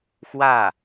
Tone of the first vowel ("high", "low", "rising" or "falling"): falling